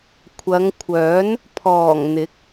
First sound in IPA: kʷʰ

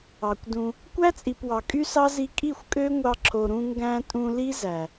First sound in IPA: ɑ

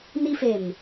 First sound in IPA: n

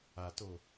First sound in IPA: a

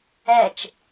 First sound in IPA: ɛ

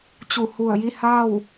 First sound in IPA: t͡ɕ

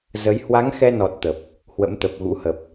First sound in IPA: z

